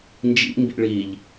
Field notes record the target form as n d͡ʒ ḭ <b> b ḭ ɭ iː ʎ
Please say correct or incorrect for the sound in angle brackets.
incorrect